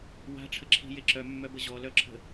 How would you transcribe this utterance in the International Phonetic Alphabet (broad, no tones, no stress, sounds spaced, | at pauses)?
w a̤ ʈ͡ʂʰ ə ǁʰ i̤ j e ǁ œ mː œ b ə ʑ ɔ l œ ǁʰ ə̤